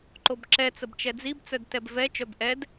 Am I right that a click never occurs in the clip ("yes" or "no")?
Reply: no